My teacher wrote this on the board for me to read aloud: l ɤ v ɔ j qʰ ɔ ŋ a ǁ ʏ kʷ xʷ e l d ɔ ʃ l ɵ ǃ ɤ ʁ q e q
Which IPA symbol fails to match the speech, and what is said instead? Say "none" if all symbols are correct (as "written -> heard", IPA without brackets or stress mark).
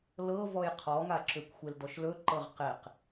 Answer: none